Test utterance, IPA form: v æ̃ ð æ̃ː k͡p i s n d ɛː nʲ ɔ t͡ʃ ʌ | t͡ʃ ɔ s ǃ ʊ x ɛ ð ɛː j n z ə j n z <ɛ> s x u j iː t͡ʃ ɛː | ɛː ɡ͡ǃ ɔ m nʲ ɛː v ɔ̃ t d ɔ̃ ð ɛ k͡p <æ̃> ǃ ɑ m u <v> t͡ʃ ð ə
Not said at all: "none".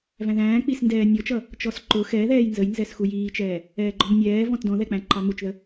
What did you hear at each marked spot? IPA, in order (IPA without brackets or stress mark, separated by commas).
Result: ɛ, æ̃, none